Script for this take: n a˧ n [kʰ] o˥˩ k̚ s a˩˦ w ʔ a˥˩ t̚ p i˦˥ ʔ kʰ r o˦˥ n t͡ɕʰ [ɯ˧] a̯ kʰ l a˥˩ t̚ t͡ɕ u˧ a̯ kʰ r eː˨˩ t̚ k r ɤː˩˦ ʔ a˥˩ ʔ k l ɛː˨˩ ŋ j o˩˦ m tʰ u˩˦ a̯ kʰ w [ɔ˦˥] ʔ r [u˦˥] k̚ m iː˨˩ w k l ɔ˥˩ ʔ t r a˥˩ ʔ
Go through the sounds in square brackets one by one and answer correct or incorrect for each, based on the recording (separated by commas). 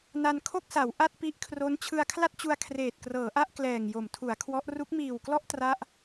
correct, correct, correct, correct